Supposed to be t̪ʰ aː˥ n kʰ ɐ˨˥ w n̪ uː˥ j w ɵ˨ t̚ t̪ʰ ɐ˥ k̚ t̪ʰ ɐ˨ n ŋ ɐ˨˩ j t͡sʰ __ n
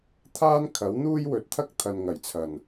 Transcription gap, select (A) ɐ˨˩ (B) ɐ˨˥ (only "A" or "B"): A